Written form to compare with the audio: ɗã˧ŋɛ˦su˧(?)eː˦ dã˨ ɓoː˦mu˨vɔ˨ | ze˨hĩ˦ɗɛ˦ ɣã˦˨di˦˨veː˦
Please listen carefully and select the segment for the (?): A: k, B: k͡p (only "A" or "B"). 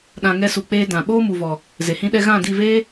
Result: B